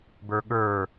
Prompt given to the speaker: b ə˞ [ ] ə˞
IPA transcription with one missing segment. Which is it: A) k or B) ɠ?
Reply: B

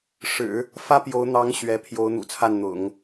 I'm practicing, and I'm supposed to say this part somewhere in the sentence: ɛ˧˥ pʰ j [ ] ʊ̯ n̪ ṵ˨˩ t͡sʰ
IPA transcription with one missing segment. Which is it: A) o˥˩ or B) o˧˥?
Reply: B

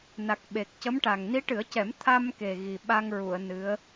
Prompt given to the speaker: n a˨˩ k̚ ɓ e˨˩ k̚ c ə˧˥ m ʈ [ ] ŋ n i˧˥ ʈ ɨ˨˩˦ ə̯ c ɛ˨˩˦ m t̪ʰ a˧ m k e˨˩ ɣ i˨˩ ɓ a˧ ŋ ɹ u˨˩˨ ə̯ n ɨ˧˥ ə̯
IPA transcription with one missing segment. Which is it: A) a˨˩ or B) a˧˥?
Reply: A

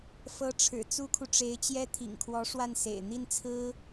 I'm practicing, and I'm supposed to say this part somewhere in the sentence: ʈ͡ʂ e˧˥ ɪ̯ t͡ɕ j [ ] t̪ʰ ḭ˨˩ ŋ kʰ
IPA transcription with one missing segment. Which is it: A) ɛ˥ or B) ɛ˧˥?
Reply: A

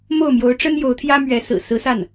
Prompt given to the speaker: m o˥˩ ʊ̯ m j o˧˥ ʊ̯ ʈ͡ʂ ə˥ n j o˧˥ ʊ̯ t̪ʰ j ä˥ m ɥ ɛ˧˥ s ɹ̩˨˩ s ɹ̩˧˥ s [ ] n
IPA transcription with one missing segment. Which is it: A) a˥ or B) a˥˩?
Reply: B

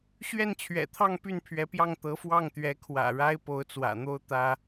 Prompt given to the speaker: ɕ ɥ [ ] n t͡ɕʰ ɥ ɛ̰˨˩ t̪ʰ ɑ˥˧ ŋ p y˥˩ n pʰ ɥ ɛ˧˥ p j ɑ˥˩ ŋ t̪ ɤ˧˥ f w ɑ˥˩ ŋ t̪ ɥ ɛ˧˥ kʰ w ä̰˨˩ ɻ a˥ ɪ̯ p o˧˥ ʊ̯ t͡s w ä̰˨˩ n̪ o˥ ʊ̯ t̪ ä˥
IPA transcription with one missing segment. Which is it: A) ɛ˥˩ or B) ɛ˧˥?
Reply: A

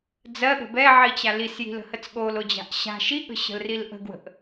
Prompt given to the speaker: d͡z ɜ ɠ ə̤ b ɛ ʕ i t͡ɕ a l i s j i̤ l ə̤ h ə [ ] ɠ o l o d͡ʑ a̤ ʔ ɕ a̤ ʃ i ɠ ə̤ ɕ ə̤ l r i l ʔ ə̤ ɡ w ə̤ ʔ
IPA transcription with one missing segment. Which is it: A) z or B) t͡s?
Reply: B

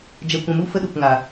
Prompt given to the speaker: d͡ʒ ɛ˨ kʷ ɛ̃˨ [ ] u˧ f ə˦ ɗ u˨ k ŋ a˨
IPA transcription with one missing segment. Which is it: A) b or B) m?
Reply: B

